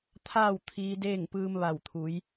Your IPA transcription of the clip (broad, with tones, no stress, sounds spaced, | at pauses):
t̪ʰ aː˥˨ w t̪ʰ iː˧ d eː˥˨ ŋ p ɯː˧ m ʋ a˧˩ w t̪ʰ u˩˧ j